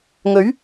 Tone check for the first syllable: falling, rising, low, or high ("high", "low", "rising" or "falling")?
rising